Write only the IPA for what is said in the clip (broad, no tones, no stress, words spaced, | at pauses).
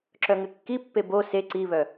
ǁœŋɘkːipːe bo se ǀiβœ